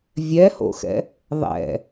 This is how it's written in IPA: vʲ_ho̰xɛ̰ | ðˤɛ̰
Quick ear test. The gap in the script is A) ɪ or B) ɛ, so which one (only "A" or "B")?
B